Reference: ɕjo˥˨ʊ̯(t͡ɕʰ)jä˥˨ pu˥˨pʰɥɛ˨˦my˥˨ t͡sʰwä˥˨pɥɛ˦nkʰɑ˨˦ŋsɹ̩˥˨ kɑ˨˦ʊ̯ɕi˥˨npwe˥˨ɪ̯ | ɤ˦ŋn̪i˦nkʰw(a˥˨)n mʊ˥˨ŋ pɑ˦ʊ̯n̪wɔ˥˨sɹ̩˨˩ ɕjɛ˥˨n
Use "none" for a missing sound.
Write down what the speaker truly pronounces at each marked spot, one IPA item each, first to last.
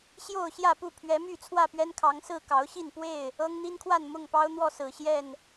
ɕ, a˥˨

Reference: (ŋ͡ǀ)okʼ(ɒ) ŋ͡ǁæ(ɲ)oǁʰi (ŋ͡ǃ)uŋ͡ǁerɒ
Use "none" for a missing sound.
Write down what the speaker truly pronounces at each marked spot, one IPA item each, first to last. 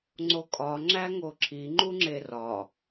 ŋ͡ǀ, ɒ, ŋ, ŋ͡ǃ

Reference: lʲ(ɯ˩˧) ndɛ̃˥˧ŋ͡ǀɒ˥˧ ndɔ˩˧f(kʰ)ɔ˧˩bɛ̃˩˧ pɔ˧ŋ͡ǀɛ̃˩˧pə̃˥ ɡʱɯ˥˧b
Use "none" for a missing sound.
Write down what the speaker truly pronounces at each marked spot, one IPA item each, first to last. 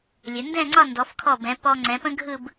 ə˩˧, kʰ

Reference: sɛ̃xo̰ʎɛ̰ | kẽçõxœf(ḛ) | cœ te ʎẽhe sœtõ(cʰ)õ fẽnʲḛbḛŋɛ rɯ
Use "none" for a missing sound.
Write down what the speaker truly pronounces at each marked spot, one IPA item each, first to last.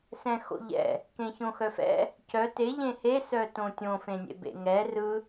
ɛ̰, tʲ

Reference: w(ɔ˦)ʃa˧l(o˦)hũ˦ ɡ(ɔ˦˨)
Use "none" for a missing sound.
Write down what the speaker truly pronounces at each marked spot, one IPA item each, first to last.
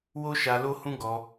o˦, o˦, ɔ˧

